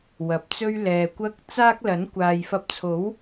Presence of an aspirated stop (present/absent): present